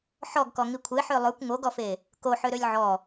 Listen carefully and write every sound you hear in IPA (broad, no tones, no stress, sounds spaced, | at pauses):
ħ ɔ ɡ k ɔ ŋ i kʷʰ e ħ ø lˠ ʉ kʷ ŋ o ɡ ɔ f e | k o ħ ø ɾ ø lʲ ʕ ɔ